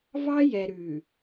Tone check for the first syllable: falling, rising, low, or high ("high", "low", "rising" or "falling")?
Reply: high